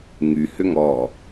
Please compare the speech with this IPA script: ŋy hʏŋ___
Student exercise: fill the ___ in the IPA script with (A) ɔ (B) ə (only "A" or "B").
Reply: A